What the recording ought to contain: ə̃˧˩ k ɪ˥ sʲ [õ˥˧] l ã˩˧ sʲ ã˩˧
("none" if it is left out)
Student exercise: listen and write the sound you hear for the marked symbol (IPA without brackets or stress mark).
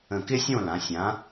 õ˥˧